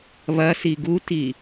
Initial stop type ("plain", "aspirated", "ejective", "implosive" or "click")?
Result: plain